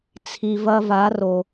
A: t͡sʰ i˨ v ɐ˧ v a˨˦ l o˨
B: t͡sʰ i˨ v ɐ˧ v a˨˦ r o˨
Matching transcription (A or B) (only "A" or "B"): B